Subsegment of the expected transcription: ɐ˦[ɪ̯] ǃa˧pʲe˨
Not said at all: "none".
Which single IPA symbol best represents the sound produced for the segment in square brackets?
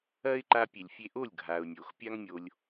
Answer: ɪ̯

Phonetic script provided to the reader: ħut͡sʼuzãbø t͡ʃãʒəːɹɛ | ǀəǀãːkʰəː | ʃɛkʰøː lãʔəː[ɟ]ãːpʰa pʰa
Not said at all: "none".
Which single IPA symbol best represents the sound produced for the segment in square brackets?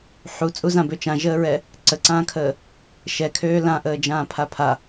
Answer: d͡ʒ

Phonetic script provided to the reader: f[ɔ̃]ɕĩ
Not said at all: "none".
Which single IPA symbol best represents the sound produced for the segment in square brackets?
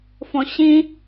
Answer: ɔ̃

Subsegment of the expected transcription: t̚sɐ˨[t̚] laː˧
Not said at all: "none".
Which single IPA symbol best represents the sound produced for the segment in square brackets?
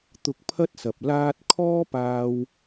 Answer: p̚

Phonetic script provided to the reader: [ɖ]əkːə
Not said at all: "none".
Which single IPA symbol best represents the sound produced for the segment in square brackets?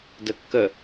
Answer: d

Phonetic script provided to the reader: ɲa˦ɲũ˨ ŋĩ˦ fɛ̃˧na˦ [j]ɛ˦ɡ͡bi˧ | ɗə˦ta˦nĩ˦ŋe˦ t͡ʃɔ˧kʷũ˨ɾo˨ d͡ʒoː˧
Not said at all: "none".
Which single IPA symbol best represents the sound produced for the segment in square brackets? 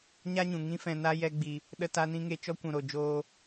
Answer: j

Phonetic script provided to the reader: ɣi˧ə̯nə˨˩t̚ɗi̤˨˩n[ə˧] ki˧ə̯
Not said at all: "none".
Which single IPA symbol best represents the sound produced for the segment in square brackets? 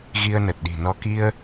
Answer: ɔ˧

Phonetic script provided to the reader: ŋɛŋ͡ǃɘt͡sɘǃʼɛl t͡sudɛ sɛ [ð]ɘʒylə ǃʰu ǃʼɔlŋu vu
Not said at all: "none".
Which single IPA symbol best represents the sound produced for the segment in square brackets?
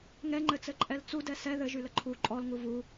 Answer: ð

